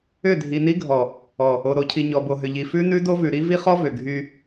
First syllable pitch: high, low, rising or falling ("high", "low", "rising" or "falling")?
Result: falling